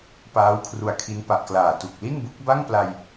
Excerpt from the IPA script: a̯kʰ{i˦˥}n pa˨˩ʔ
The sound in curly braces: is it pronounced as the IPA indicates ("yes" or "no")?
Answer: yes